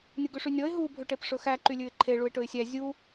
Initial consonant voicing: voiced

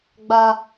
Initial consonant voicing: voiced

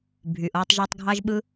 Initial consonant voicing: voiced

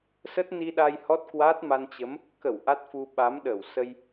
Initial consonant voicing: voiceless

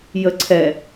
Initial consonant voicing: voiced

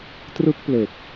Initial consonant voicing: voiceless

